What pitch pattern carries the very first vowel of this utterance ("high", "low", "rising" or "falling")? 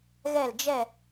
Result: falling